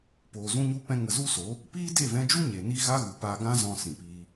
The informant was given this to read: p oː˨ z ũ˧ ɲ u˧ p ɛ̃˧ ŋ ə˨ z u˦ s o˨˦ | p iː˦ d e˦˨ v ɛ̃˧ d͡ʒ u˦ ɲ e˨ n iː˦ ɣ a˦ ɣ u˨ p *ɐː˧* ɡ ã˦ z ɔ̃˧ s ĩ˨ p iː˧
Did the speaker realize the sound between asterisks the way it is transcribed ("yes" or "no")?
no